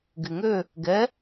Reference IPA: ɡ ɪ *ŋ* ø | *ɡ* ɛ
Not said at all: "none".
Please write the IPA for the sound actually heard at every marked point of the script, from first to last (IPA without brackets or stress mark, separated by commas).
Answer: ŋ, ɡ